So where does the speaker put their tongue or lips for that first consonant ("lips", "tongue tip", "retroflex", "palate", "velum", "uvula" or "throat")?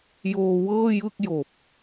palate